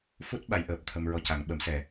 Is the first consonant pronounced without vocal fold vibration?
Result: yes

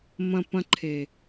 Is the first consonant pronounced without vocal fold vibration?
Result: no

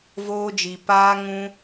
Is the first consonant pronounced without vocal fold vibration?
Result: no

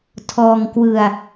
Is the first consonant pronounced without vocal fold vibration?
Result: yes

